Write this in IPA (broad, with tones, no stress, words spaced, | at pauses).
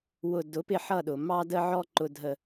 wʊ˨ dʊ˨˦pɪ˦˨ħʌ˦˨ɗʊ˨ mɑ˦də˦ʕɔ˦ ǃʊ˦dʱə˦